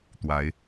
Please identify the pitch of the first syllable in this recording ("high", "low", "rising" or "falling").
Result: rising